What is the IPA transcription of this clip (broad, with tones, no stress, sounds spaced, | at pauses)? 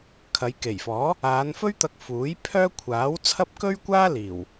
kʰ ɐ˨˧ j k e˨˩ j f ɔː˨˥ | aː˨˧ n f ɵ˥ ɥ t̪ ɐ˧ k̚ f uː˨˥ j pʰ œː˥ kʷʰ aː˨˥ w t͡sʰ ɐ˥ p̚ k ɵ˥ ɥ kʷ aː˥ l iː˨˩ w